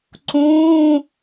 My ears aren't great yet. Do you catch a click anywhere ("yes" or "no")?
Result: yes